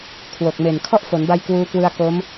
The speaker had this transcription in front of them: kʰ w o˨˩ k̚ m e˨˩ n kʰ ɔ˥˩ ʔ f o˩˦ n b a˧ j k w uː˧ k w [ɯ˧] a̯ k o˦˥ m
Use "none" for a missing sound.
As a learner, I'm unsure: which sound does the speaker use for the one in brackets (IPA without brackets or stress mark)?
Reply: ɯ˧